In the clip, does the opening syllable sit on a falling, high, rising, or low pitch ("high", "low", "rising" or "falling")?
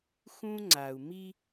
high